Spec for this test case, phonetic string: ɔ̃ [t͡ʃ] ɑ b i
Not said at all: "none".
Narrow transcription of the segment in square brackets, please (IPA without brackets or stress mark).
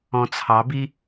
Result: t͡sʰ